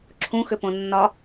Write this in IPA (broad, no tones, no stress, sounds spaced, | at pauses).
ǁʰ ũ x ʏ p õ nː ɒ